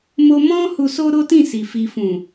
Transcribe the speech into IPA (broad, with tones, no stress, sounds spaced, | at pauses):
m o˧ m ɔ̃˦ h u˧ s o˦ ɾ o˦ t ĩ˦˨ s i˨ f i˨ f ũ˨